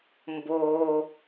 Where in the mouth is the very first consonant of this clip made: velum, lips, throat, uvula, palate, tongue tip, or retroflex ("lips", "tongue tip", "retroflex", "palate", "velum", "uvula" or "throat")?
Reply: lips